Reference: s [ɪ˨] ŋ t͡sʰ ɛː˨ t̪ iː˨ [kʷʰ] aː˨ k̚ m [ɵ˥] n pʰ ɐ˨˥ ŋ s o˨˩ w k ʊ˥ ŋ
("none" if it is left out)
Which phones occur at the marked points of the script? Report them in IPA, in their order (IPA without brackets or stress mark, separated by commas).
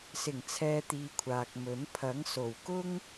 ɪ˨˩, kʷʰ, ɵ˨˥